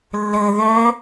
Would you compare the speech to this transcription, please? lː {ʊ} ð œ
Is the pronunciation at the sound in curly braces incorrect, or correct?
incorrect